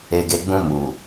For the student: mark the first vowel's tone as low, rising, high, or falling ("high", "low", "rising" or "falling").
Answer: low